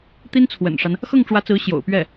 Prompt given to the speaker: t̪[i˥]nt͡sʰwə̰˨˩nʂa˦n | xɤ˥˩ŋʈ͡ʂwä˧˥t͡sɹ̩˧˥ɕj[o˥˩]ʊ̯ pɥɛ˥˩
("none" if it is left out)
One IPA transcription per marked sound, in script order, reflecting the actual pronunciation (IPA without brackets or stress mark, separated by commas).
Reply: i˥, o̰˨˩